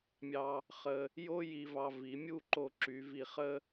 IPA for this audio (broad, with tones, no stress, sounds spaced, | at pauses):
mʲ ɑ˧ | χ ə˧ | j o˥ j i˧ v ɑ˧ v i˩˧ mʲ u˥˧ ǃ o˧˩ ǁ y˩˧ v i˧˩ χ ə˥